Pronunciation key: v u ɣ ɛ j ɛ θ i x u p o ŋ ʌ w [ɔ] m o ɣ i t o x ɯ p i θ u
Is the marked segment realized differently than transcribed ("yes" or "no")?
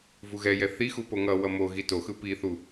yes